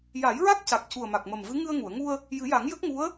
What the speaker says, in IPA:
j a˨˩˦ j ɹ a˦˥ k̚ c a˨˩ k̚ c u˨˩ ə̯ m a˨˩ k̚ m ə˨˩ m v ɨ˧˥ ŋ ɨ˧ ə̯ ŋ u˨˩˨ ə̯ ŋ u˧ ə̯ | j ɨ˨˩˦ j a˨˩˦ ŋ j ə˦˥ k̚ ŋ u˧˥ ə̯

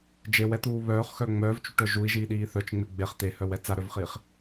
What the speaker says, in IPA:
d͡ʒ e w ɛ t̪ uː β œː χ x œ ŋ͡m œː v t͡ʃ u ʈ œ ʒ u i̯ ʒ iː ɗ iː θ œ t͡ʃ ŋ͡m e ɡ͡b e χ t̪ e h œ w ɛ t͡s a ɾ œ v χ iː χ

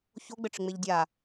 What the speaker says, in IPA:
ç o ɡ͡b ɘ ʈ͡ʂ ɪ ŋ͡m e ʎ dʲ a

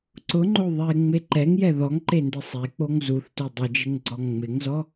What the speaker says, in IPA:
ǀ ʊ ŋ͡ǃ o ðˤ e ŋ͡m e ǃ ɛ ŋ j ɛ ð ɔ ŋ ǃ e n d ɪ sˤ e k͡p o ŋ z u θ t o dˤ ɪ d͡ʒ ɪ ŋ ɡ͡ǀ ɔ ŋ ŋ͡m ɪ ŋ z ɔ

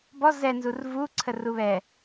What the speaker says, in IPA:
b ɔ z ɛ n z u r v u ǀʰ ə r u β ɛ

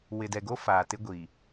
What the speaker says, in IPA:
w ɪ˨ d ɛ˨ ɡ o˦ f aː˨ t ɪ˦ ɡʷ i˨

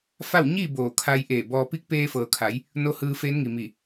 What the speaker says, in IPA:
f a˥˨ w ɲ i˥˨ b oː˧˩ kʰ a˧ j ʔ eː˧˩ b ɔː˧ p i˧˥ k̚ p eː˧ f ɤː˩ kʰ a˩˧ j | n o˧˥ h ɯː˧ f eː˧˥ n ŋ i˩ m i˧˩

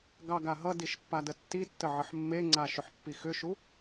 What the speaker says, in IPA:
ɡ ɑ ɡ a ɦ ʌ d i ʃ pː a d ə tː i tː ə ʕ ə ħ mː e ŋ͡ǀ a ʃ ʏ ħ pː i x ʏ ʃ u

